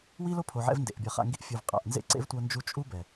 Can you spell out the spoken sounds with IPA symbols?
w i˦ l o˦ pʰ o˨ ʕ ɛ̰˧ v n d ḛ˨ ʔ bʲ ʌ˨ χ a̰˦˨ ŋ ɡ i˦ ʔ fʲ u˨ v qʼ a̰˨ ʔ n z ḛ˦ ǀ ḛ˦ v tʷ ʌ˦ n d͡ʒ u˦ t͡ʃʼ u˦ b ɛ˨

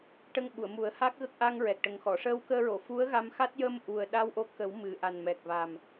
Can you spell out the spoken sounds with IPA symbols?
ʈ ə˧ ŋ ɓ u˨˩˨ ə̯ m u˨˩˦ ə̯ h a˦˥ k̚ ɣ ə˦˥ k̚ ʔ a˧ ŋ ɹ ɛ˨˩ k̚ ʈ ə˨˩ ŋ x ɔ˨˩˨ ʂ əː˧ w k əː˧ ɹ o˨˩˨ f u˧˥ ə̯ ɣ a˧ m x a˦˥ t̚ j ə˧ m ʔ u˨˩ ə̯ ɗ a˧ w ʔ o˧˥ k ə˨˩˦ w m ɨ˨˩ ʔ a˨˩ n m ɛ˨˩ k̚ v a˨˩ m

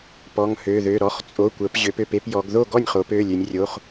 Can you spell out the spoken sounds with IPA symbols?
p ɔ˩˧˩ ŋ h ø˩˧˩ ð ø˩˧˩ ɾ ɔ˩˧˩ χ t͡sʼ o˩˧˩ kʷ ə˩˧ p ʑ ø˩˧ p ø˩˧˩ p e˥˩ p j ɔ˩˧ ɡ ð o˥˩ ɡ ɔ˥˩ nʲ χ o˩˧ p ø˩˧˩ lʲ ø˩˧ nʲ rʲ o˩˧˩ χ

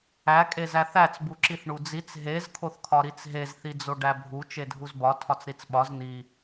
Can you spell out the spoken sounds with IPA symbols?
æ kʼ e z æ θ æ t͡s b u ǁ i θ ɳ u d͡z i t͡s ɦ e z kʰ o θ kʰ ɒ ɾ i t͡s ɦ e z θ i d͡z o ɖ æ bʱ u t͡ʃ e dʱ u z b ɒ tʰ ɒ t͡s ɾ i t͡s ɓ ɒ z n̪ i

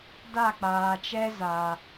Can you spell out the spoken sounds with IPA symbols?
d a˦˨ k͡p aː˨ t͡ʃ ɛ˦ z a˧

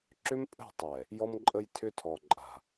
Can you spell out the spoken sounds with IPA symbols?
ǁ ʏ˦ m pʼ ə̤˦˨ tˤ ɛ˨ | j ɔ˦ m ǃʼ ə˦ j tʰ ʏ˦ tʰ ɔ˨ ǃʼ a̤˨

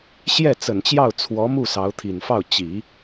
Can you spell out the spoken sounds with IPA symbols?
ɕ j ɛ˥˩ t͡s ə˨˩ n t͡ɕ j ɑ˥˩ ʊ̯ t͡sʰ w ɔ˧˥ m u˥˩ s ɑ˧˥ ʊ̯ t̪ʰ i˨˩ n f ɑ˥˩ ʊ̯ t͡ɕ i˨˩˦

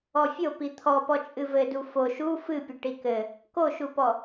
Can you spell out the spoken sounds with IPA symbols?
ɔ fʲ o p i t̪ʰ ɔ p ɔ t͡ʃʼ ɨ v ɘ d u f o ʃ u f ɨ pʲ ɘ ʈ i k ɘ | k o ʃ u p ɔ

